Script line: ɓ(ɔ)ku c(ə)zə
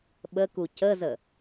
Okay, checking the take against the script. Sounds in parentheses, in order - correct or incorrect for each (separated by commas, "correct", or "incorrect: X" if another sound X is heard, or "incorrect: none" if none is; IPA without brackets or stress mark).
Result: incorrect: ə, correct